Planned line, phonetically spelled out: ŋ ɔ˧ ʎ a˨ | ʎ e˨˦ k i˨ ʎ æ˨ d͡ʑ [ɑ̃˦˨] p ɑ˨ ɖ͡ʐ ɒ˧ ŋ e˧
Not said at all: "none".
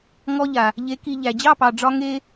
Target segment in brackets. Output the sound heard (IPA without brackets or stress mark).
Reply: ɑ˦˨